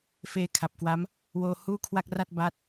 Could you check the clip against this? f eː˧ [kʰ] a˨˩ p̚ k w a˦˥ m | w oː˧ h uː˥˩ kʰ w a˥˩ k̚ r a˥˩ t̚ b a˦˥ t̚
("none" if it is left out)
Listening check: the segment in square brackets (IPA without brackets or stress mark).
kʰ